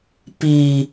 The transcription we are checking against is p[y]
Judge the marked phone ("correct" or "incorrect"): incorrect